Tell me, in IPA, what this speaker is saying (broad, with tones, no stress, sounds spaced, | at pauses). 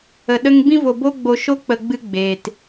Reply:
ə˨ ɗ ə˧ ŋ b ĩ˧ v o˨ b o˦ ɡ͡b o˧ ʃ o˦ k͡p ə˧ ɡ͡b ɨ˧ ɡ͡b eː˨ t